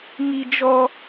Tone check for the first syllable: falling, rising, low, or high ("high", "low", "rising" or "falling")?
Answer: high